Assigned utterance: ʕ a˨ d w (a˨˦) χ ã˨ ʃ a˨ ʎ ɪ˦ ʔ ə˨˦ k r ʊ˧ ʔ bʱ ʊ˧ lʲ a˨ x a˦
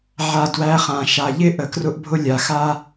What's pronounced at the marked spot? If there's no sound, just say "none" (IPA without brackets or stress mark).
æ˨˦